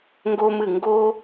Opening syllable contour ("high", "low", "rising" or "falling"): high